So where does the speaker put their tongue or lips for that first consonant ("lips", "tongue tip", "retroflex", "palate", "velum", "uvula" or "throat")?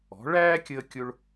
retroflex